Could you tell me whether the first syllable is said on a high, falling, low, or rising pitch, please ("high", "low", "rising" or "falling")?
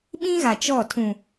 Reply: high